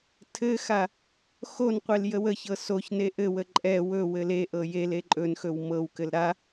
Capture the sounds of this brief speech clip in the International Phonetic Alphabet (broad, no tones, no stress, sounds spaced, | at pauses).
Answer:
tʰ ɘ x a | x o n qʷ e l j ə w ə ç ɤ s o ç n e ʔ ɘ w ə ǃʼ ɛ w ɵ w ɘ l e ʔ ɤ j e l e ǃʼ ɵ n x ɵ w m ɤ w k ɘ l ɾ a